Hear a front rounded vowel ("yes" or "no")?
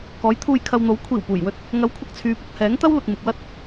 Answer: yes